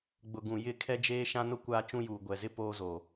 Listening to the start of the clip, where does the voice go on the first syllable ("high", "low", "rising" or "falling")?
low